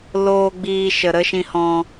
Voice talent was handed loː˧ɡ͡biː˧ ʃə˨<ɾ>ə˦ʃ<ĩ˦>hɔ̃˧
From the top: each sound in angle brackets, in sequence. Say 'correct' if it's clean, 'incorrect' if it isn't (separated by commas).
correct, incorrect